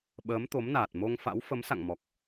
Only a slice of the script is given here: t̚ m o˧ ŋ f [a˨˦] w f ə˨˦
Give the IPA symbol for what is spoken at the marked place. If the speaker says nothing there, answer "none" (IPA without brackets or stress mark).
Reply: a̰˧˥